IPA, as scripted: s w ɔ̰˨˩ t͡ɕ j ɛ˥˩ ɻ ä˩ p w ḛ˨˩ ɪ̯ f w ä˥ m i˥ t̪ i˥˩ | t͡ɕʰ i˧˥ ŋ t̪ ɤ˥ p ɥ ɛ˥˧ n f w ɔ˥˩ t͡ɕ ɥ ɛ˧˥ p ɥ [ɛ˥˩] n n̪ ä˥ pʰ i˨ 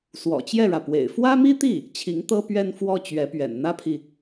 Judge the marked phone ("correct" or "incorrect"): incorrect